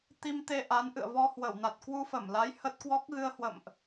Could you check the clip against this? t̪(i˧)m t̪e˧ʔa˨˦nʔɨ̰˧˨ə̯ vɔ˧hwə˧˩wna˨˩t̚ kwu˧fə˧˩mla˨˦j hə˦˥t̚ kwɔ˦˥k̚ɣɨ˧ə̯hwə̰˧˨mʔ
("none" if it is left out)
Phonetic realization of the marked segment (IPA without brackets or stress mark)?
i˧